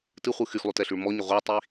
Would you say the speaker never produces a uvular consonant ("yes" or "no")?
no